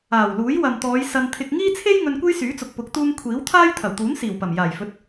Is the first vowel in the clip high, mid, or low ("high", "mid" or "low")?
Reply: low